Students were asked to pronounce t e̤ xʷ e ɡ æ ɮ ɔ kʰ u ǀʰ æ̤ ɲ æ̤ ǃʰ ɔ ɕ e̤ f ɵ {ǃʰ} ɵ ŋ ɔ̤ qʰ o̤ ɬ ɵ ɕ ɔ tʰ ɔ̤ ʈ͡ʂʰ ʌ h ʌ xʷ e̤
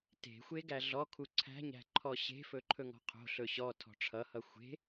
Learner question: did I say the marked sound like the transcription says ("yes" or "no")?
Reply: yes